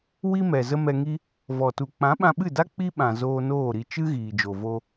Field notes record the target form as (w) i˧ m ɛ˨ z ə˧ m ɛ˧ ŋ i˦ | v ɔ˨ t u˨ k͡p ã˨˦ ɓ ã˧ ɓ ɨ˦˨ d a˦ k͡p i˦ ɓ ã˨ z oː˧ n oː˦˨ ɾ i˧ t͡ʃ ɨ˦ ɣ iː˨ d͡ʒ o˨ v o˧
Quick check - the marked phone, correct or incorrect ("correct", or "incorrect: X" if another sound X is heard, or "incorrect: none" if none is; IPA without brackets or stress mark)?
correct